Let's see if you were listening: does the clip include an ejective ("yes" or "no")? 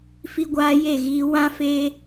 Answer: no